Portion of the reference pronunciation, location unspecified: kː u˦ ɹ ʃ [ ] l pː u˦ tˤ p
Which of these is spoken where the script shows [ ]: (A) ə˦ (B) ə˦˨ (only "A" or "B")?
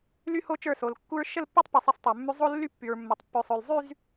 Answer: B